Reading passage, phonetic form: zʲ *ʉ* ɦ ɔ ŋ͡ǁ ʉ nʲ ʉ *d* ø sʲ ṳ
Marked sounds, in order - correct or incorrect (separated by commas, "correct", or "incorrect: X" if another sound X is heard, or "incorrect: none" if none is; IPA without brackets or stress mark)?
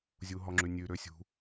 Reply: incorrect: u, incorrect: ɾ